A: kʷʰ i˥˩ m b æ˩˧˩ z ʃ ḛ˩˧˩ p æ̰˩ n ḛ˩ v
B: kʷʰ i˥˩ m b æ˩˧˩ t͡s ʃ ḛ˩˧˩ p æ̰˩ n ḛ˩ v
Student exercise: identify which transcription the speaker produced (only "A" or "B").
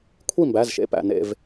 A